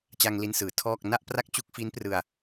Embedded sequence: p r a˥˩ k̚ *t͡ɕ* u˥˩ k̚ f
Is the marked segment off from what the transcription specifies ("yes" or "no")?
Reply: no